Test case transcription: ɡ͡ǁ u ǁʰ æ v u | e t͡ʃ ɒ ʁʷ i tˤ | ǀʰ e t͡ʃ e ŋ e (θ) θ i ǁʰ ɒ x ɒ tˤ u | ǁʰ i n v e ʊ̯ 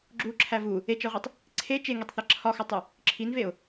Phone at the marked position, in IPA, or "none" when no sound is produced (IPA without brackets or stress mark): tˤ